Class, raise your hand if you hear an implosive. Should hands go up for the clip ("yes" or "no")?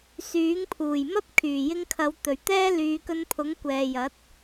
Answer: no